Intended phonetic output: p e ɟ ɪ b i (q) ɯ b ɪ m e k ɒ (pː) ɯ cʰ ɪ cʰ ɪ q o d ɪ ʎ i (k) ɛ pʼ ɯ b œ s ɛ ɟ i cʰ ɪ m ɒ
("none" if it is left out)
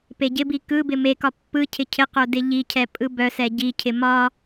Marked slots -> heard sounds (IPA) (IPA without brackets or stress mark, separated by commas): k, pː, cʰ